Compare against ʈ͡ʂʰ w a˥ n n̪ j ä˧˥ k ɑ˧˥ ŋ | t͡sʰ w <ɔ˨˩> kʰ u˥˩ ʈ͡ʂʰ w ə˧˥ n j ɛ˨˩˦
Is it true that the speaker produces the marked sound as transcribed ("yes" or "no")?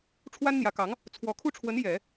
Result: yes